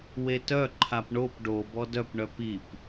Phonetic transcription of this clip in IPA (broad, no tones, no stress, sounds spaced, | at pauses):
w e t œ ǃʰ a p ɳ o p ɖ o b ɔ d œ p ɳ œ p i p